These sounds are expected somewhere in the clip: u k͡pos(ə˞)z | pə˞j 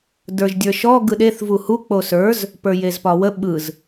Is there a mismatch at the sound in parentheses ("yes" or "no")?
no